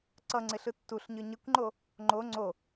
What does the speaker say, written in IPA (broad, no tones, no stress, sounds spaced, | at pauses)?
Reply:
ǀ ʌ ŋ͡ǀ ɪ ɬ ɯ tː u ɬ ɲ ɯ ɲ ɪ kʷ ŋ͡ǃ o | ŋ͡ǃ o ŋ͡ǀ o